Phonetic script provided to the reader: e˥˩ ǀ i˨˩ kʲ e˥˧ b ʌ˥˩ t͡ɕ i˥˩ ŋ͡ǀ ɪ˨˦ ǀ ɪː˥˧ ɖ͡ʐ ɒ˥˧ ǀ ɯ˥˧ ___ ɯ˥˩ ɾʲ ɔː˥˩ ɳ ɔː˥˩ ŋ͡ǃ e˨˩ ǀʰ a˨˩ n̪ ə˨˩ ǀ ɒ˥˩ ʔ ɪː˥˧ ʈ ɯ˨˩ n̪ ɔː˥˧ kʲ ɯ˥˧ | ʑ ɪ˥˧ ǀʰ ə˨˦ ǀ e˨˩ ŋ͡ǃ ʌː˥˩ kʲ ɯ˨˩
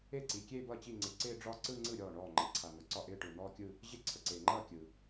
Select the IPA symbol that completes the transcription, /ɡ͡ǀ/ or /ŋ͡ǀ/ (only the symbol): ŋ͡ǀ